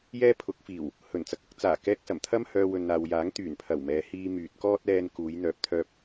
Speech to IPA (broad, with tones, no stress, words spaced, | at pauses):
jɛː˥pʰʊ˨˥k̚fiː˨˩w | hɵ˨˩nt͡sɐ˧k̚ɐ˨˥k̚ t͡saː˨˩kɛː˧k̚sɐ˨˩mt̪ʰɐ˥m hœː˧ wɵ˨nn̪aː˨w jaː˨˥ŋt̪yː˨˩npʰɐ˨˩wmɛː˨˧ hiː˧ myː˨t̚kɔː˥t̚ ɛː˧nkuː˨˧j n̪œː˨˥p̚t̪ʰœː˧p̚